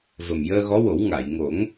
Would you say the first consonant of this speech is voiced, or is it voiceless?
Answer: voiced